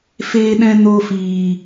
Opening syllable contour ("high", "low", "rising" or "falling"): high